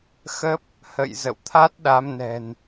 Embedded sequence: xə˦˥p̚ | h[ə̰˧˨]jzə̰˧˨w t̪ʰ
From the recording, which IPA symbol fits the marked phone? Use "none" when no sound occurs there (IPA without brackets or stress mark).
ə̰˧˨